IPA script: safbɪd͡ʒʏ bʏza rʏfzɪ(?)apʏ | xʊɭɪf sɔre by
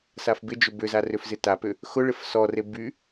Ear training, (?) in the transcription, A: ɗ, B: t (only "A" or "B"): B